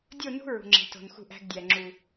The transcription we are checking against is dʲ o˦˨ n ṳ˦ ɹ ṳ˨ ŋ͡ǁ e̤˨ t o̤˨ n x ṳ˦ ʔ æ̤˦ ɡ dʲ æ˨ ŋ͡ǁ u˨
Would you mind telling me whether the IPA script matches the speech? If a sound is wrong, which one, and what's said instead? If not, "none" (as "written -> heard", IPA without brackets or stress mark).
none